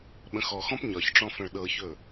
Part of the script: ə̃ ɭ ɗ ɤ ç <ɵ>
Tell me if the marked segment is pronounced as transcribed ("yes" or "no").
yes